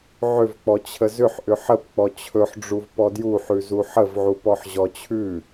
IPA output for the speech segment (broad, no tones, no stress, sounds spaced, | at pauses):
ʕ ʏ v k͡p ɔ t͡ɕʰ ə z ʏ ħ ʔ ʏ ħ ə p k͡p ɔ t͡ɕʰ ɵ ħ ɖ͡ʐ u v p ɔ d j u ħ ʉ z u ħ ə v ʕ u p ɔ ħ ʑ ɔ t͡ɕʰ ʉ